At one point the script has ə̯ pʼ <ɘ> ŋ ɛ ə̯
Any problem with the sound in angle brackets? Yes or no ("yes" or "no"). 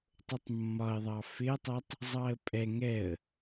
yes